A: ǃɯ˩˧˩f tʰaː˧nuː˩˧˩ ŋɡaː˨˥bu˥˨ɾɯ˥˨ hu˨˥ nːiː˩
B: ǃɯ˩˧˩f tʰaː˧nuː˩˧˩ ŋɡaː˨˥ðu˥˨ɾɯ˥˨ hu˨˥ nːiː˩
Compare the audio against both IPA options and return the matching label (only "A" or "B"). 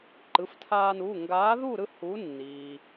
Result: B